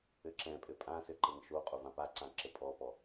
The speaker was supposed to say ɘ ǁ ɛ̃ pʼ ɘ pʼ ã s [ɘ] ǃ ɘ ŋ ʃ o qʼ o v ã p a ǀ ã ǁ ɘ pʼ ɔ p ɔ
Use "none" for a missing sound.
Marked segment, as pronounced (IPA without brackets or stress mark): ɘ